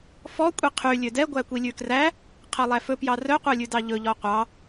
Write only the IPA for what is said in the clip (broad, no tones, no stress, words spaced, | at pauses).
fɔ kʷʼiqʰy lʲødɛ ɡʷækʷilʲʉkræ | qʰɛlˠæfɵ pjɑrœ qʷœlʲʉdɑʎɵ ʎɔqʷɑ